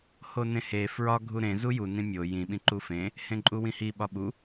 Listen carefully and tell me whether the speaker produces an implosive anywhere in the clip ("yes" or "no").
yes